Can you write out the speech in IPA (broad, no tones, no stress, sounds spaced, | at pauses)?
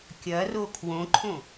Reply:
kʲ ɐ r o kʰ w õ ǃʰ õ